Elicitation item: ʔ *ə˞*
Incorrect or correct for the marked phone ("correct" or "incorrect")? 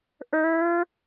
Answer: correct